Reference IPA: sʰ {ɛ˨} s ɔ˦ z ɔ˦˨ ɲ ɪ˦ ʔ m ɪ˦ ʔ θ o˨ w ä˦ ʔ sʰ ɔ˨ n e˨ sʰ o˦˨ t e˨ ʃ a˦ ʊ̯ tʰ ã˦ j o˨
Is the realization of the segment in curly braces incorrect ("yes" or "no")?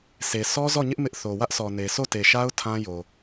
yes